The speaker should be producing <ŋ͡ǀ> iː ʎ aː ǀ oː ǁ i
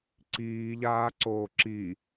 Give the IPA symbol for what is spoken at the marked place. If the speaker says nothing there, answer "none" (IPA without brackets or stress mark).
ǀ